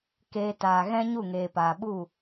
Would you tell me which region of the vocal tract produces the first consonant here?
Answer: velum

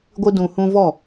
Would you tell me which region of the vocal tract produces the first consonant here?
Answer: velum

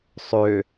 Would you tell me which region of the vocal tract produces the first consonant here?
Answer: tongue tip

